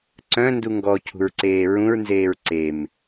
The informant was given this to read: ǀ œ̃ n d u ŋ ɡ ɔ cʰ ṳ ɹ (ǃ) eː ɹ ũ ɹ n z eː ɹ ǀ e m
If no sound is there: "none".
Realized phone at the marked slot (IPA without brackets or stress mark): ǀ